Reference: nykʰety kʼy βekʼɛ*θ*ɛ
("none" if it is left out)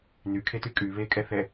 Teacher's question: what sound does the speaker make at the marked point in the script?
θ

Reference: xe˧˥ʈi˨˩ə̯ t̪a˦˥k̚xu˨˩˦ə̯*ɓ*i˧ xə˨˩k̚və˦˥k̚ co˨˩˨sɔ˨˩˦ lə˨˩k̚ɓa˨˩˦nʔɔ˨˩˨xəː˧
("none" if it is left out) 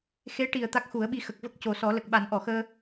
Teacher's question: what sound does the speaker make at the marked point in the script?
ɓ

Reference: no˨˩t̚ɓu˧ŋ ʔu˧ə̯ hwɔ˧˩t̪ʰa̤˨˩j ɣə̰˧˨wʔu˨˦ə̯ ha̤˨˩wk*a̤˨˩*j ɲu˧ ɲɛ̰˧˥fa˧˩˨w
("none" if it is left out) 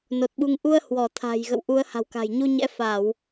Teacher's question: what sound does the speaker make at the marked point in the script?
a̤˨˩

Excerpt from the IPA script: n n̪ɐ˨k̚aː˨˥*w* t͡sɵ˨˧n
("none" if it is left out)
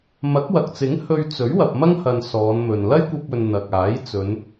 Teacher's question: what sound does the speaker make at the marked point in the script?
j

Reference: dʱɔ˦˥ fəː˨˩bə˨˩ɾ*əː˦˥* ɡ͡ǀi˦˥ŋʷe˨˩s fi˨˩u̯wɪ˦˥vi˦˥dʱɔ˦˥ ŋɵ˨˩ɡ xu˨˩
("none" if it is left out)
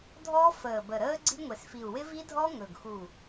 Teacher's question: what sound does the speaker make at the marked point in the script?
əː˦˥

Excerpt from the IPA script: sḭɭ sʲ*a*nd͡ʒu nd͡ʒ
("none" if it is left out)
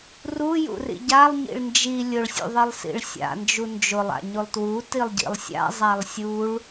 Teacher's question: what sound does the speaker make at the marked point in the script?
a̰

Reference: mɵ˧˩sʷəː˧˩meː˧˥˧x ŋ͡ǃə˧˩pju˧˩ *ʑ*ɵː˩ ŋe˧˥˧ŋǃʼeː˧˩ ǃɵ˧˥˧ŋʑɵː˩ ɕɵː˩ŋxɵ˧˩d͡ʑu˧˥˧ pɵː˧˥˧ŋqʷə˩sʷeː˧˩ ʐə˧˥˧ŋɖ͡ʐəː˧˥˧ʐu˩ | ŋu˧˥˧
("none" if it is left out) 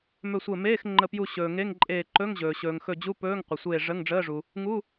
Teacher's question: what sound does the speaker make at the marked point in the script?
ɕ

